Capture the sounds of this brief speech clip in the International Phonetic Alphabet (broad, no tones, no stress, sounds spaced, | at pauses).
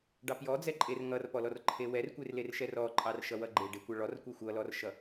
ɖ ɑ p j ɔ d͡z ɛ ǃʼ e r ŋ ʌ r p ɔ l ɔ r ǃʰ e w ɛ r kʷ e r l e r ʃ ɛ r ɔ ǃʼ ɑ r ʃ ʌ w ʌ ɡ͡ǃ e ɖ e kʷ ɑ ɭ ɔ r kʷ e xʷ ʌ l ɔ r ʃ ʌ